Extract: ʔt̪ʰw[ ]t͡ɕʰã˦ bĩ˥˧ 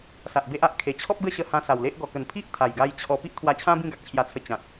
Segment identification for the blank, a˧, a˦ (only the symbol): a˧